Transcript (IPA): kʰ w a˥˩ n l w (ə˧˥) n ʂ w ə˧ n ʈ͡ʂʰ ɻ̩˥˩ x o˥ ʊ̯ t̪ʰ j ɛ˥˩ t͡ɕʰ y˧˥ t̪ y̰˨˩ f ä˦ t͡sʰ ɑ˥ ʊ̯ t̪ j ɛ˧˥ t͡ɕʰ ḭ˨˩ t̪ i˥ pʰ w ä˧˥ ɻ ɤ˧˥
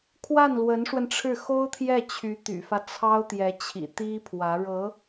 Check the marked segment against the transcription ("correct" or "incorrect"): correct